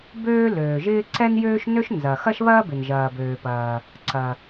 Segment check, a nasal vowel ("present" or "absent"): absent